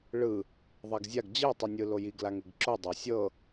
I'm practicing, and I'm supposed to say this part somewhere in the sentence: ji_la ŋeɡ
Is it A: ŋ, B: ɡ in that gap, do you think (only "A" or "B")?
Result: B